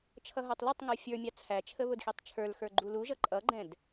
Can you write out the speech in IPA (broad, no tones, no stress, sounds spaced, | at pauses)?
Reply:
t͡ʃʰ ʌ ɦ ə˞ tˤ l ɛ tˤ ŋ ə˞ fʲ ə˞ mʲ ɑ t͡sʰ æ t͡ʃʰ ə β ʊ d x i tˤ t͡ʃʰ ə˞ l x ə˞ ɡ͡ǃ u l u ʒ ʌ ǃʼ ʌ ɡ͡ǃ ɛ̃ d